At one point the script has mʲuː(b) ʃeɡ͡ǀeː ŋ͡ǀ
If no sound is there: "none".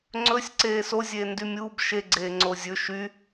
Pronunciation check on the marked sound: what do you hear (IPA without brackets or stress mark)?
b